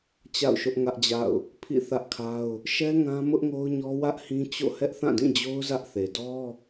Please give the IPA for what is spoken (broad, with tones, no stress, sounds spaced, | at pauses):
t͡ɕ a̰˦˨ ʊ̯ ʃ ʊ˦ ʔ ŋ ä˦ ʔ d͡ʑ a̰˦˨ ʊ̯ | pʰ ḭ˦˨ θ ä˦ ʔ kʰ a˦ ʊ̯ | ʃ ɛ˦ ŋ ã˦ m ʊ˦ ʔ ŋ o˦ ʊ̯ ɲ ɔ˦ w ä˦ ʔ h ĩ˦ t͡ɕ o̰˦˨ h ɛ˦ ʔ θ ã˦˨ d ĩ˦˨ d͡ʑ o˦ ʊ̯ z ä˦ ʔ θ e˨ d ɔ˦